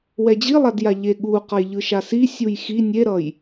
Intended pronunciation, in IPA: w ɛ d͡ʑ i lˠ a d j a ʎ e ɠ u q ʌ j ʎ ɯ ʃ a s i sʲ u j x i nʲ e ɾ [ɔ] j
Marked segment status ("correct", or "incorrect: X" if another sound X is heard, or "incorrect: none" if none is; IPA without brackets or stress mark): incorrect: ʌ